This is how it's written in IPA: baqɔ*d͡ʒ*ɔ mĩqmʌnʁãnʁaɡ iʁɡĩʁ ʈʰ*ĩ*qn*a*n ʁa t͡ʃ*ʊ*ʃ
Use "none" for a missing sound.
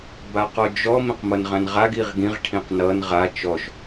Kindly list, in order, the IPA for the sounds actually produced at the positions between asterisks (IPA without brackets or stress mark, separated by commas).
d͡ʒ, ĩ, ʌ, ɔ